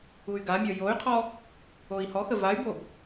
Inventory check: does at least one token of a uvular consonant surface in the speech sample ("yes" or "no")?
yes